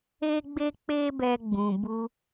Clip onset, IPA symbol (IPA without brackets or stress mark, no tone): e